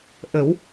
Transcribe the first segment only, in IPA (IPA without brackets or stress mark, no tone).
ʔ